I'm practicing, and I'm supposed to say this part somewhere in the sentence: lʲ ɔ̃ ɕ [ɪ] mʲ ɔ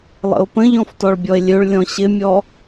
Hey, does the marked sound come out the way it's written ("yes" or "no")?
yes